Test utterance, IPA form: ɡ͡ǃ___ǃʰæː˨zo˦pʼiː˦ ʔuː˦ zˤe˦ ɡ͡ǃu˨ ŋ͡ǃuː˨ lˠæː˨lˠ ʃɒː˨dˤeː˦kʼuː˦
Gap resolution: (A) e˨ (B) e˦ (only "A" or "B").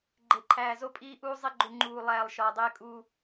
A